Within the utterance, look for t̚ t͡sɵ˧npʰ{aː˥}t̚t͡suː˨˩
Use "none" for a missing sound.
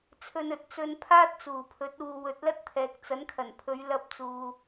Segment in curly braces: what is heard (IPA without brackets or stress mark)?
aː˥